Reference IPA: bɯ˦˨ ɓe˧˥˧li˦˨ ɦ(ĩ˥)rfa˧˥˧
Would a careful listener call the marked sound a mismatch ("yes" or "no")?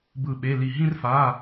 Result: no